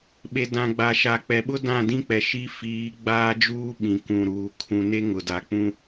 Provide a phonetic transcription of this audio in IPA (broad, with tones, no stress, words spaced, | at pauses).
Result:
ɓe˨dã˨ɡ͡ba˨ ʃa˨k͡pɛ˨ɓʊ˦ dã˦˨dĩ˦k͡pɛ˨ʃi˦ fiː˨˦ɡ͡baː˦d͡ʒuː˦ ɓĩ˨kũ˨ɾuː˨ kʰũ˨ne˦ ŋʊ˨ da˨k͡pũ˦